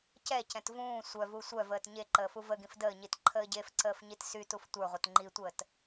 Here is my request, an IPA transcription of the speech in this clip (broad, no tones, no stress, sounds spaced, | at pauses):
c ɛ c ɛ̃ t v ũː sʷ œ v u sʷ œ v əː t ɲ e ǃ əː f u v ə ɡ ĩ f d əː ɲ i t ǃʰ əː ɟ e f ǀ əː f ɲ i t s y t u f tʷ ə˞ ʁʷ œ t ŋ͡ǃ i tʷ əː t